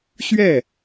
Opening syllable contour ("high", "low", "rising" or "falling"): falling